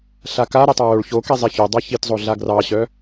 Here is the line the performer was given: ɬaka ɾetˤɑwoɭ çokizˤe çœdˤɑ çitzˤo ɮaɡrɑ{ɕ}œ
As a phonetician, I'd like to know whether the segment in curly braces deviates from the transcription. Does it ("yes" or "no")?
no